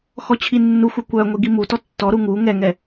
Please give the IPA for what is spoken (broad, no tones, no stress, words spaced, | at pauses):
xɔt͡ɕʰinːuxʷœ kʷœ ŋʷiɡimutɔ tːɔɾu ŋu ŋɛŋɛ